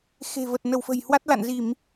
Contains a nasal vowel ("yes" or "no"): no